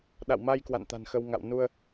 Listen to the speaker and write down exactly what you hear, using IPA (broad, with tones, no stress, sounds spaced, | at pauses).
ɗ a̰˧˨ w m a˧ j k w a̰˧˨ n t̪ a̤˨˩ n x ə˧ w ŋ a̰˧˨ w n u˧ ə̯